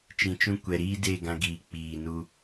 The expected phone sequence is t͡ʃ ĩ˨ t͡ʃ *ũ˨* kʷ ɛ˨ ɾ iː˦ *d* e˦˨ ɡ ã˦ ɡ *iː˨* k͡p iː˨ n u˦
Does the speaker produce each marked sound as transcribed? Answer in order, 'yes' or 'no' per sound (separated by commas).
no, yes, yes